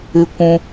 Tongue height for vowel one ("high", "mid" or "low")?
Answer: high